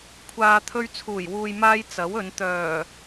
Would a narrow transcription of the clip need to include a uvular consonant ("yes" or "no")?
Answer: no